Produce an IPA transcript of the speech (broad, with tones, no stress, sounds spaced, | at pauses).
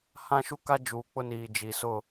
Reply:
h ã˦ ʃ u˦ k a˦ d͡ʒ uː˨ k͡p ʊ˦ n iː˨ d͡ʒ i˨ s ʊ˦˨